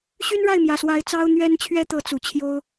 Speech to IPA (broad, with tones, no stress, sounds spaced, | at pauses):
ɕ y˥ n ɻ a˥˩ ɪ̯ m j ä˨˩ s w a˧˥ ɪ̯ t͡s ɑ˥ ʊ̯ n̪ ɥ ɛ˥ n t͡ɕʰ ɥ ɛ˥ t̪ ɤ˧˥ t͡s u˨˩ t͡ɕʰ j o˥ ʊ̯